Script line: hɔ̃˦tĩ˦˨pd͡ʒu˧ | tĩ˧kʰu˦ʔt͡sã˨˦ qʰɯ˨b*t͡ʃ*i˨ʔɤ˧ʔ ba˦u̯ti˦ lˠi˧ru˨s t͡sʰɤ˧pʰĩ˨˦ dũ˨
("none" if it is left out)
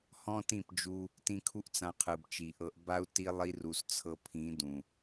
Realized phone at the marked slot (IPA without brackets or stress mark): t͡ʃ